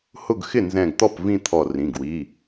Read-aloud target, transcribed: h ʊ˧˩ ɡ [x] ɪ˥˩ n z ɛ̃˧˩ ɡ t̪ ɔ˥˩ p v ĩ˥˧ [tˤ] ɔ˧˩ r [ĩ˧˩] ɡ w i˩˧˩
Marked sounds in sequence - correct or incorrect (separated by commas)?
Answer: correct, incorrect, incorrect